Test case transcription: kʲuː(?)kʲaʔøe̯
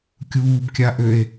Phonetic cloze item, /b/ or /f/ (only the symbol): b